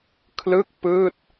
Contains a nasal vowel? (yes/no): no